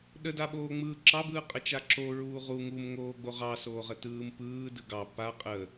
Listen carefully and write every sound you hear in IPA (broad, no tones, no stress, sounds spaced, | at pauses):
ɗ ə d a ɓ oː ŋ͡m ɯː ǁ ɑ b ɯː qʼ ə t͡ʃ a ǁ o ɹ uː ʁ u ŋ u m ŋ oː ɡ͡b o ʁ ɑ s oː ʁ ə t ɯː m p ɯː d ɯ ɡ ɑ p a qʼ ə